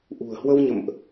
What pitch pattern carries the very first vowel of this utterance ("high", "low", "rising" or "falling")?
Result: low